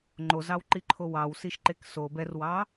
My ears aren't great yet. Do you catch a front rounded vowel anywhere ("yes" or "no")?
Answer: no